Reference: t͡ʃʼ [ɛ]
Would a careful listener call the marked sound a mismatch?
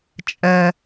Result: no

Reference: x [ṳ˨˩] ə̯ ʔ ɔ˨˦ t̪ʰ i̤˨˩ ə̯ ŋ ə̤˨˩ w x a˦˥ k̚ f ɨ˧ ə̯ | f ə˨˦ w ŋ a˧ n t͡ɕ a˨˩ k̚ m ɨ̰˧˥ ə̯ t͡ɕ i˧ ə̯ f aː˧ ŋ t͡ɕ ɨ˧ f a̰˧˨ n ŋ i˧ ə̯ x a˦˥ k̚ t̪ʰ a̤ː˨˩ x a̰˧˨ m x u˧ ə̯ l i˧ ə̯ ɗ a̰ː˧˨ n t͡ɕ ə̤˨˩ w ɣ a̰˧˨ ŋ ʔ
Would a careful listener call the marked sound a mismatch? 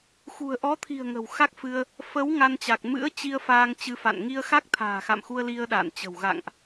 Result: no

